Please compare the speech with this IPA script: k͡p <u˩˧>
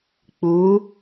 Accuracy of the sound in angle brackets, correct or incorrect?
incorrect